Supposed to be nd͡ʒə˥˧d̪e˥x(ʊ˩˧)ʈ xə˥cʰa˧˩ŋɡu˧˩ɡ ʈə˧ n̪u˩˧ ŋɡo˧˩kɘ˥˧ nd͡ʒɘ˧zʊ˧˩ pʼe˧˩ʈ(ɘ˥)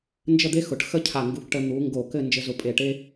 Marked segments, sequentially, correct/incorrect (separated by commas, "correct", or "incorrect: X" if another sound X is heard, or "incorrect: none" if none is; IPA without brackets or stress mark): correct, incorrect: e˥